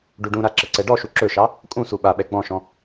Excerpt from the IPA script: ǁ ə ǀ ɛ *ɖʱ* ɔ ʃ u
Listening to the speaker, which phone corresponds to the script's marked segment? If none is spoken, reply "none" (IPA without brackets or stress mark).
ɖ